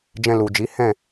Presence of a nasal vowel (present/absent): present